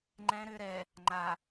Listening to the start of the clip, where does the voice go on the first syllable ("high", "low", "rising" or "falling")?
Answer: low